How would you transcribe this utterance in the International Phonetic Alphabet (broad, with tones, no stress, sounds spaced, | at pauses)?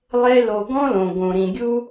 lˠ e˧ l o˨ ɡ ɔ̃˧ l õ˨ ɡ õ˨ ɾ ĩ˨ ɡʲ u˦